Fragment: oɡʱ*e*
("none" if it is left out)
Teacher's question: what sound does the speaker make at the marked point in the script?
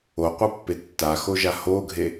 e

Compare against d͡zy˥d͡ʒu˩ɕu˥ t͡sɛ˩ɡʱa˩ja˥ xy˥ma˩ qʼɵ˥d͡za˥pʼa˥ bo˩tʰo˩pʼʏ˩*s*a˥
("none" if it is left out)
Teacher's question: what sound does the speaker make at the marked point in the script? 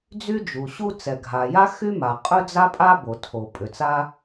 t͡s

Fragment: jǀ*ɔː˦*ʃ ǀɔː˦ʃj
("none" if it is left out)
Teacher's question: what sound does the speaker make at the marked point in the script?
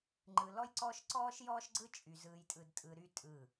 ɔː˦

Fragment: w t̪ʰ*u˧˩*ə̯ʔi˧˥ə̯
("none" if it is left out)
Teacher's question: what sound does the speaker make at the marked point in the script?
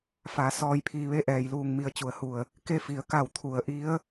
u˩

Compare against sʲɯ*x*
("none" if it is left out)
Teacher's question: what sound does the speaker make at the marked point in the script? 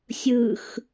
x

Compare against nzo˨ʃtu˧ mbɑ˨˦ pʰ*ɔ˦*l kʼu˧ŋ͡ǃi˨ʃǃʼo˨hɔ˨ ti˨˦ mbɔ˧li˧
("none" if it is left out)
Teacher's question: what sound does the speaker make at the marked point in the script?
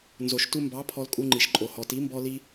ɔ˧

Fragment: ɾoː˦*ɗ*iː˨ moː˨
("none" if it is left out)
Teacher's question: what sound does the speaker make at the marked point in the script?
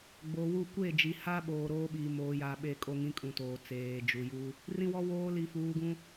ɓ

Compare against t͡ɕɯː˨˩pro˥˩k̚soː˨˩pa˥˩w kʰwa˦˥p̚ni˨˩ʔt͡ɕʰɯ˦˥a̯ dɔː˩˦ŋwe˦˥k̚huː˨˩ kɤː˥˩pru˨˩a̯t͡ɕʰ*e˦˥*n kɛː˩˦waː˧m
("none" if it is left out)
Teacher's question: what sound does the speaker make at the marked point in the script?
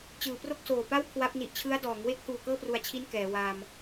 i˦˥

